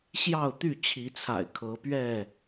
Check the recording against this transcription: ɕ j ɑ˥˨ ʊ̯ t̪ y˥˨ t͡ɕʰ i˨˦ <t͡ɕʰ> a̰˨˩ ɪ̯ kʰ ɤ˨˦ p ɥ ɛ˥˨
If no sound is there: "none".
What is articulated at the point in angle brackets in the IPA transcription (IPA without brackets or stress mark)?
t͡sʰ